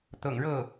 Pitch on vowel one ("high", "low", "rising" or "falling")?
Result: low